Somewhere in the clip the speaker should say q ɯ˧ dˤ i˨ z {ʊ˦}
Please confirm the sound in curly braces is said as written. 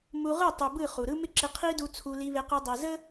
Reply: no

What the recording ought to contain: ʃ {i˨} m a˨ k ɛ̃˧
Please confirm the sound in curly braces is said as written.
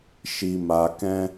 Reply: yes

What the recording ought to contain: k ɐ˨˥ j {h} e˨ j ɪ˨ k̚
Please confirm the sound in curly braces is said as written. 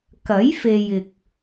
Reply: no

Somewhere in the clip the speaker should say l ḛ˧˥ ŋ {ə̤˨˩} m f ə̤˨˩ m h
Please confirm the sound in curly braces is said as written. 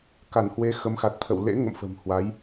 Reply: no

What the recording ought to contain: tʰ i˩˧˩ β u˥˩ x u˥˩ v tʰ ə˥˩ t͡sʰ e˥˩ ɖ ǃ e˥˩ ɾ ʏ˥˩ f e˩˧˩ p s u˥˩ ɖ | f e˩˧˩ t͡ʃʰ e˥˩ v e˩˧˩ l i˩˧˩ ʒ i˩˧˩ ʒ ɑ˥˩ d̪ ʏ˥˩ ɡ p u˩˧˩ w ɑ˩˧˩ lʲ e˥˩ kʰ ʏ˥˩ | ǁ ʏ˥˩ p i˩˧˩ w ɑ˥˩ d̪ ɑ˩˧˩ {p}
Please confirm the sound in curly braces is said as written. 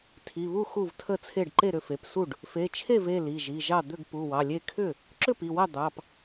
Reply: yes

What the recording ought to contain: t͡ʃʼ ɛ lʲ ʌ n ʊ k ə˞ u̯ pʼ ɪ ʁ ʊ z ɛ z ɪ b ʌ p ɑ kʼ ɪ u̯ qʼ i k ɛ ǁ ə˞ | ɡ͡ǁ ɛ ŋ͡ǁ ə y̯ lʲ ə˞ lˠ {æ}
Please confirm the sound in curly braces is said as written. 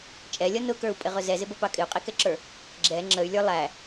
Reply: yes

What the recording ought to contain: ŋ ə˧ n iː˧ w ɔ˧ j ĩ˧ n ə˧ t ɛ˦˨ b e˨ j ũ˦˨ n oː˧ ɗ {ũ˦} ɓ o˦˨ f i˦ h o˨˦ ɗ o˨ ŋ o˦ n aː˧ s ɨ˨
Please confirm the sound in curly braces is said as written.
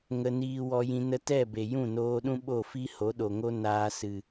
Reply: yes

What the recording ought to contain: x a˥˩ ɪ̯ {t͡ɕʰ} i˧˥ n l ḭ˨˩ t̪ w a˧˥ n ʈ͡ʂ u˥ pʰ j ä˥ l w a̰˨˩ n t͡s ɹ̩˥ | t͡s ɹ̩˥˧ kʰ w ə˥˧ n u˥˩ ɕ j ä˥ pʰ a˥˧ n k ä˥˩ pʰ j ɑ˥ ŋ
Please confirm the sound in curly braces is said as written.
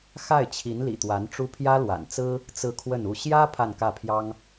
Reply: yes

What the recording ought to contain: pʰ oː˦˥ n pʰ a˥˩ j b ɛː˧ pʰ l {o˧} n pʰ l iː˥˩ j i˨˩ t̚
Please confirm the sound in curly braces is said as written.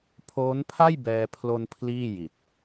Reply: yes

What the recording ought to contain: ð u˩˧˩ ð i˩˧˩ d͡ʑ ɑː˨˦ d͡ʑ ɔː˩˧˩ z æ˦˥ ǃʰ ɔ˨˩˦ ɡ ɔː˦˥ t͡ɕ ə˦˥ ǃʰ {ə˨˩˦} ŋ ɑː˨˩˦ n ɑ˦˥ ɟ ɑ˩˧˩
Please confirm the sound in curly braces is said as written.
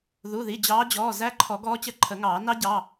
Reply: yes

